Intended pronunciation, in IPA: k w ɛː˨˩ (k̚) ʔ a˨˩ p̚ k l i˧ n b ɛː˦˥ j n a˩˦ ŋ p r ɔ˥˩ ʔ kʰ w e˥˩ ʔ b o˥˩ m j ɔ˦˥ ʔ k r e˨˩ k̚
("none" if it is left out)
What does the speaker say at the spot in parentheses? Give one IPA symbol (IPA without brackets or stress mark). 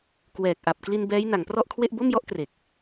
k̚